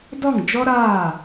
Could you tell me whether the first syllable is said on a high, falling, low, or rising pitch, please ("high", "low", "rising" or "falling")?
falling